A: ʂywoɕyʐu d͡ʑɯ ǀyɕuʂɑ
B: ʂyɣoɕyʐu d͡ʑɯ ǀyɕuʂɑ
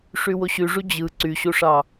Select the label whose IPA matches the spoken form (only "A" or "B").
A